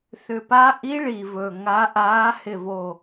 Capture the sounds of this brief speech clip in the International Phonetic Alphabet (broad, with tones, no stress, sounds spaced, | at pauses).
θ ʏ˨˩ p a˧˥ ʔ i˧˥ ɭ i˨˩ v ɵ˨˩ ŋ a˧˥ ʔ aː˧˥ h ɪ˨˩ v o˨˩